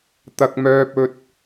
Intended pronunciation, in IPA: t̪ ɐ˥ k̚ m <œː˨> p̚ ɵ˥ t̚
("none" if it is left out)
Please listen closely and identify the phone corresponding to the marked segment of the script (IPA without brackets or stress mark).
œː˥